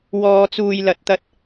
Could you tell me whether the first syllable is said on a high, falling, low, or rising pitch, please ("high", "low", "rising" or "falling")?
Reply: low